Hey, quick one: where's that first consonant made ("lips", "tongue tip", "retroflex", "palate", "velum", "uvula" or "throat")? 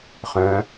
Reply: uvula